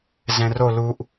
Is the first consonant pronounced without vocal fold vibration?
no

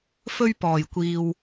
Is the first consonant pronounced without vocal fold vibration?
yes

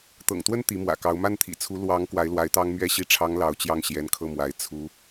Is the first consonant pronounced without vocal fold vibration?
yes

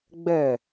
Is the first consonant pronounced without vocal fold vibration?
no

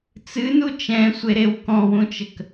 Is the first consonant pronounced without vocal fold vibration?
yes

